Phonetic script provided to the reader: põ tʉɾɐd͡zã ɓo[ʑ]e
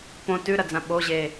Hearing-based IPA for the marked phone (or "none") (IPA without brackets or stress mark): ʑ